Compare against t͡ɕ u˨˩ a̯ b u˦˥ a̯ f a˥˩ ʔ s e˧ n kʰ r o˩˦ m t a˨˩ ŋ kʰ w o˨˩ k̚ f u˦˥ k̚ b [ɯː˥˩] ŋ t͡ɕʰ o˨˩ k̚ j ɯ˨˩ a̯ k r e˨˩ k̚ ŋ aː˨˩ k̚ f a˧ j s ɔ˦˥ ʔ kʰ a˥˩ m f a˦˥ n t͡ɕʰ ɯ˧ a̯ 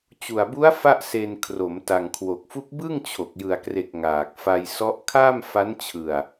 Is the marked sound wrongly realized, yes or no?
yes